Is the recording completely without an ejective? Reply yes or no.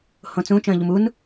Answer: yes